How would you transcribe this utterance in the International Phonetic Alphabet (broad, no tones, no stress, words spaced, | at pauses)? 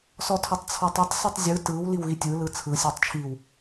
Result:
sɔtʰɔtˤt͡sʰɔtˤɛtˤ sitˤzʲɯ tɯw liwɣitʲɯ lɯt͡sʰɯ sʲɔtˤt͡ʃʰiw